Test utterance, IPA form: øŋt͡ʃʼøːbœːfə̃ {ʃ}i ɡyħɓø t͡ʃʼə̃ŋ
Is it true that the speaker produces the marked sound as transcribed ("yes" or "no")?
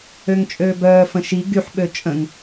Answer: yes